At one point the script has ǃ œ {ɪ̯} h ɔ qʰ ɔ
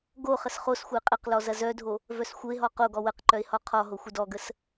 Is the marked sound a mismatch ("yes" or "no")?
no